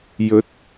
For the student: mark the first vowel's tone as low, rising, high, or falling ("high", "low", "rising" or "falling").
rising